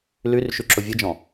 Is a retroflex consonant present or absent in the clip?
absent